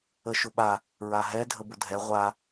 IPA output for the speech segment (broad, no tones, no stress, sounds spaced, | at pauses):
ə ʃ ʊ ɓ a | ɹ a ɦ ɛ dʱ ə b ʊ dʱ ɛ ʁʷ a